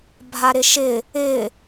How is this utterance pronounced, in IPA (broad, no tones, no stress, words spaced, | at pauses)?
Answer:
bʱaɾɪʃɪ | ɪ